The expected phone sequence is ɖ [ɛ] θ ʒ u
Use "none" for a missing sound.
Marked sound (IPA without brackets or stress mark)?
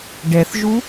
ɛ